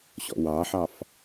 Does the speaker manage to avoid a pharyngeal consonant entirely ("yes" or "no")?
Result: no